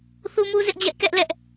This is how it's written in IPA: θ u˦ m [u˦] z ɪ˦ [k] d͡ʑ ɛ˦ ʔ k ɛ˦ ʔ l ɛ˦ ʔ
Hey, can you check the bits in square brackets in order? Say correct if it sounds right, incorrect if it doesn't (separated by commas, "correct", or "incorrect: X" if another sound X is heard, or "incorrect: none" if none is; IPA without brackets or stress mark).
correct, incorrect: ʔ